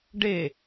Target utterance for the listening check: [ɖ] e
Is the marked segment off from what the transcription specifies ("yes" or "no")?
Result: no